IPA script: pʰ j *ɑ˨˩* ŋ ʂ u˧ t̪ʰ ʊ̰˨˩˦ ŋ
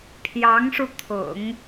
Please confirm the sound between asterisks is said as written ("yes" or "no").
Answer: no